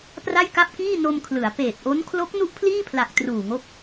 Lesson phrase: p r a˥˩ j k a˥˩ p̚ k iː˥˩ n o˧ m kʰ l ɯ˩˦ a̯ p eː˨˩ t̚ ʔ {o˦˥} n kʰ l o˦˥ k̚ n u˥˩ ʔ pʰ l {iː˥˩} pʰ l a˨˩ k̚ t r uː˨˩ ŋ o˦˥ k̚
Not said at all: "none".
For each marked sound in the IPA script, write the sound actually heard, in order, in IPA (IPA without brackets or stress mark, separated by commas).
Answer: o˦˥, iː˥˩